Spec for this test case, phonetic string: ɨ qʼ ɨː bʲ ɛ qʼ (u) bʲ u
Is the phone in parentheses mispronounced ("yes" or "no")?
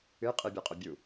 yes